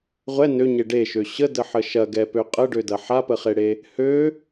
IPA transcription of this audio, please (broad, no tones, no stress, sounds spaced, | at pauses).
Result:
ʁʷ ɛ n ø ɲ e ɖ e ʃ ø ɕ ə d ə ħ ə ʃ ɐ ɡ ɛ p ø qʼ ə ɖ ø d ɐ ħ a p ə χ e ɽ e | h ø